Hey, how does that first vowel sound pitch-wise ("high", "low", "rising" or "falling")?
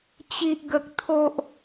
high